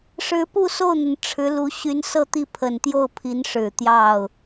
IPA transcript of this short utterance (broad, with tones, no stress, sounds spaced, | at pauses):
ʂ ɻ̩˧˥ p u˥˧ s o˥˩ ʊ̯ n̪ ə˩ n ʈ͡ʂʰ ɻ̩˧˥ l u˧˥ ɕ y˧˥ n s ɤ˥˧ t̪ i˥˩ pʰ ə˨˩ n t̪ j o˥˩ ʊ̯ pʰ i˧˥ n ʂ ɻ̩˨˩ t̪ j ɑ˥˩ ʊ̯